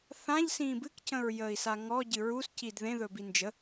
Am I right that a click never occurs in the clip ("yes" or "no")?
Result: yes